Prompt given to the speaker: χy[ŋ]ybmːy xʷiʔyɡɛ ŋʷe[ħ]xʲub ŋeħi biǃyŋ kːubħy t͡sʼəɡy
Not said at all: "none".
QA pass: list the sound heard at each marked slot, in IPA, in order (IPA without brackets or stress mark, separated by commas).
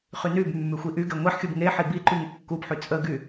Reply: n, ħ